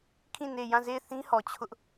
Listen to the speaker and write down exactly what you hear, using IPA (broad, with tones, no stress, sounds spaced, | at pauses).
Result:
kʰ ĩ˦˨ n e˦˨ j ã˦˨ z e˦˨ ɪ̯ θ ĩ˦ h ɔ˨ t͡ɕʰ ʊ˦ ʔ